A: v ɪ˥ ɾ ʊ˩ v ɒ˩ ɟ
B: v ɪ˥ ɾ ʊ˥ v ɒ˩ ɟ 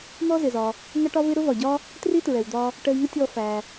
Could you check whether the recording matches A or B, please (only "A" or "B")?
B